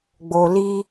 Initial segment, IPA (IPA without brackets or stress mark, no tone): ɡ͡b